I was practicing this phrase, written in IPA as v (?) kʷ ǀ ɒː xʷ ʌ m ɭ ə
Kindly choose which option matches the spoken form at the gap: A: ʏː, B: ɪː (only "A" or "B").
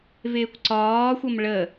B